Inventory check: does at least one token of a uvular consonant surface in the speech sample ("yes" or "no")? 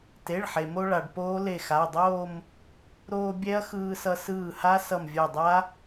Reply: no